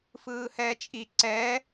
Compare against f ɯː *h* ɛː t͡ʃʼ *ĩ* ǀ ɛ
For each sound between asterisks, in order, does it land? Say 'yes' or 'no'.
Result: yes, no

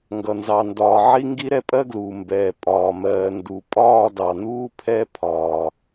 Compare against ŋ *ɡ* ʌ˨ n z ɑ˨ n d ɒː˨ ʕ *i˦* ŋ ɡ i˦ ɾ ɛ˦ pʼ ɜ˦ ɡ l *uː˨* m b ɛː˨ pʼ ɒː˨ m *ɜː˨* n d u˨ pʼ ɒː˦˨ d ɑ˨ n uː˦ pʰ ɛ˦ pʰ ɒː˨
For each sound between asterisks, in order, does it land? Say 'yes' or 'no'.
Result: yes, yes, yes, yes

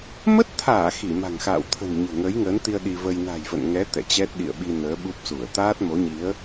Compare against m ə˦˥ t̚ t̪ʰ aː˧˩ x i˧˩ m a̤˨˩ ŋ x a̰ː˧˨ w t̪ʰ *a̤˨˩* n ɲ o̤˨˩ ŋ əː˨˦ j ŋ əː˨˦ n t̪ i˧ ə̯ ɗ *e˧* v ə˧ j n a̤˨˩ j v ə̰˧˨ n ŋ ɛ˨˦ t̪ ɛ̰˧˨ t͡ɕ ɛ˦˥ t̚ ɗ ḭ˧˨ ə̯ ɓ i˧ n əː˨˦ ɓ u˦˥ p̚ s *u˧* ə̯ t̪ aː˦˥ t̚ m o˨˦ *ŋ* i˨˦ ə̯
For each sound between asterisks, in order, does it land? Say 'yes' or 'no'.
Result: no, no, no, no

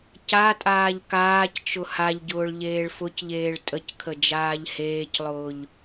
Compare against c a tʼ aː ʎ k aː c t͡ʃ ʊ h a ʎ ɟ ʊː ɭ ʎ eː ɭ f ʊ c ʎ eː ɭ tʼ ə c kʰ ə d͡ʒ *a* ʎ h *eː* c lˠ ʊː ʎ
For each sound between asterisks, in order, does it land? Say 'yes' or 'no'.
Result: no, yes

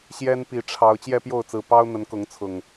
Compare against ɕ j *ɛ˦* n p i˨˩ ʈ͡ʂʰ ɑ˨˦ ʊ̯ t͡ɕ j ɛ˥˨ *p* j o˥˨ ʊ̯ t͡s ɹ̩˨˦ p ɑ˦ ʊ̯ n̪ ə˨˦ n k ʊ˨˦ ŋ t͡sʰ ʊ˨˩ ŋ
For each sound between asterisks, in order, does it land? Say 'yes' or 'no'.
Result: yes, yes

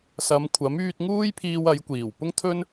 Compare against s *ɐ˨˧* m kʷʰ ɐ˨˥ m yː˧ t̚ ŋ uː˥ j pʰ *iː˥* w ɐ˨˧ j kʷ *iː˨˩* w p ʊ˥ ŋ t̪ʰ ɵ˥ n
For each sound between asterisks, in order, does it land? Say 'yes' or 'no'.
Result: yes, no, yes

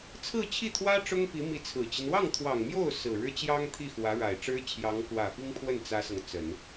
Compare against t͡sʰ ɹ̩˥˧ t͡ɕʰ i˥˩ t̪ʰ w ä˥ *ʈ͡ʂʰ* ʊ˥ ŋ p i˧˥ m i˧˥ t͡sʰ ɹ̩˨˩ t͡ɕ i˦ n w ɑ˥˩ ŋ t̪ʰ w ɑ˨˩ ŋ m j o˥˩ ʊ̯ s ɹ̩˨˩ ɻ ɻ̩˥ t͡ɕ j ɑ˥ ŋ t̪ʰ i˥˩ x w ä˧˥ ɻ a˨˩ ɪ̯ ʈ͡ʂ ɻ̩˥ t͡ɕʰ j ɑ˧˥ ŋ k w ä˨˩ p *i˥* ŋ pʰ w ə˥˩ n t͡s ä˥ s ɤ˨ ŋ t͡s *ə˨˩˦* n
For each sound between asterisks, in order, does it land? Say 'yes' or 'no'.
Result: no, yes, yes

